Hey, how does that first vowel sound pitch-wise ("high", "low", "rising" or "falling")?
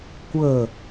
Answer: falling